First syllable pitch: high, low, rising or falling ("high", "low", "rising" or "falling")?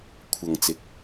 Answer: low